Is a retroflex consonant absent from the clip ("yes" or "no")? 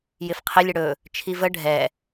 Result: no